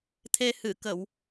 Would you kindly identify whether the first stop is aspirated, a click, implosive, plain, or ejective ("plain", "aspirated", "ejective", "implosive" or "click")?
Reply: aspirated